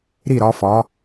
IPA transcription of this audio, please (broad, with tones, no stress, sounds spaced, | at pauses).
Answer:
ɾ i˧˩ ɾ ɒ˩˧ f ɒ˩˧